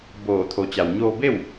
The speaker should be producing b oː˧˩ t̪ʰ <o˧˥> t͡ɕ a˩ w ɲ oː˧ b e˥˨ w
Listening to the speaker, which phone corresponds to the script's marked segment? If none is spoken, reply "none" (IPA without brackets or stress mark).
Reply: o˩˧